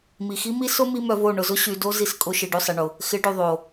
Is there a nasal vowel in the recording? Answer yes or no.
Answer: no